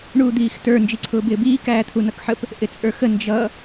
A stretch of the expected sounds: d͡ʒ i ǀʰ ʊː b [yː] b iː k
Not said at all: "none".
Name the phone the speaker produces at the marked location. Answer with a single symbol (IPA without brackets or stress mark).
ɪː